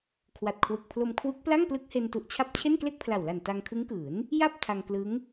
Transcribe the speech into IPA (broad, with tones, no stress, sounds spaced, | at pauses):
kʰ w a˨˩ t̚ kʰ w ɯ˨˩ k̚ pʰ l o˧ m kʰ w u˦˥ k̚ p l a˥˩ ŋ p l ɯ˦˥ k̚ h e˧ n t u˨˩ ʔ t͡ɕʰ a˦˥ p̚ t͡ɕʰ e˥˩ n k l e˥˩ k̚ pʰ l a˨˩ w l a˨˩ n t a˧ ŋ kʰ ɯ˦˥ ŋ k ɯː˩˦ n | j a˥˩ p̚ tʰ a˧ ŋ k l ɯ˦˥ ŋ